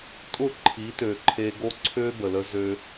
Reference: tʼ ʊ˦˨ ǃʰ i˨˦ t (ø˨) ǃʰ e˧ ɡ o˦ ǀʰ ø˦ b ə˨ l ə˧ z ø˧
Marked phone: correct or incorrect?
correct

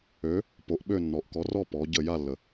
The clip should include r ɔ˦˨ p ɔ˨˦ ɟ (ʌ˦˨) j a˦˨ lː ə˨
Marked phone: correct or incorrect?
incorrect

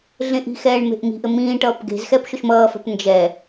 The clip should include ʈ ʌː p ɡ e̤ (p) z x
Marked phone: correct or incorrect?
incorrect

